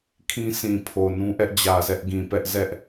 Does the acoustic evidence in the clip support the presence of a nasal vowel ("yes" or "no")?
yes